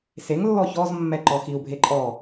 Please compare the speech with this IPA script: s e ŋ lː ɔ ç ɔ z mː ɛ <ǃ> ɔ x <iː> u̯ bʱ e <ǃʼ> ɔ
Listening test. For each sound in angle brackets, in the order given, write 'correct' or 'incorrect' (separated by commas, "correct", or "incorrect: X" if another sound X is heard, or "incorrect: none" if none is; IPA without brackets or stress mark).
correct, incorrect: i, correct